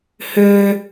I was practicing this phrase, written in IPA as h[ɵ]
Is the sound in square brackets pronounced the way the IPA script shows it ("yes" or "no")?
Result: no